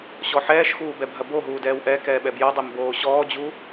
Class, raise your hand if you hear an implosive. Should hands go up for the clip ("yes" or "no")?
yes